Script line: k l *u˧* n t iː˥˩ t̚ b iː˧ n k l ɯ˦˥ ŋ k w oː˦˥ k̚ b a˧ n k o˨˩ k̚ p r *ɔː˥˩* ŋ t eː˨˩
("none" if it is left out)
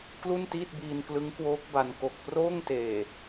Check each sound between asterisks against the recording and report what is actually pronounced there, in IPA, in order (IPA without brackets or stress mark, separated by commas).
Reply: u˥˩, oː˥˩